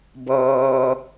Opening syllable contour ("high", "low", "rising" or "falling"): low